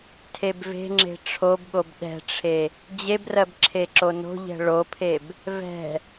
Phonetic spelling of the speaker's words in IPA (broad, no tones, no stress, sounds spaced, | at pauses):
tʰ e b v e̤ ŋ͡ǁ e̤ ʈ͡ʂʰ o b ɠ o b ɗ ɛ̤ ʈ͡ʂʰ e | d͡ʑ e b r ɜ b ǁʰ e ǁ o n o̤ ʎ ɛ̤ ɭ o pʰ e b | v ɛ̤